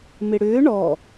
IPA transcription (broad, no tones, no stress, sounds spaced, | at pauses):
m ɪ ɽ ʏː ɳ ɔ